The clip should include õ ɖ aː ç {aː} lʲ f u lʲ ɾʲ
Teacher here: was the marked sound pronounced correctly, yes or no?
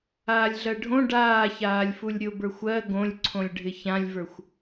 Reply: yes